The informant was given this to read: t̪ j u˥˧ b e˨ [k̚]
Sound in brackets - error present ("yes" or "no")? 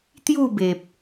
yes